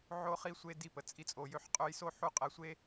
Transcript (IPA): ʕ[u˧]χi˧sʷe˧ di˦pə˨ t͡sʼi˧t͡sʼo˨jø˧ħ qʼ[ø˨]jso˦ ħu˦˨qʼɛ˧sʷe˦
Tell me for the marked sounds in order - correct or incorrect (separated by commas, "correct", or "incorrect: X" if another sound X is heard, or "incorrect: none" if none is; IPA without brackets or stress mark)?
incorrect: o˧, incorrect: ø˧